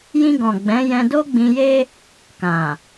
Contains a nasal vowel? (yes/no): yes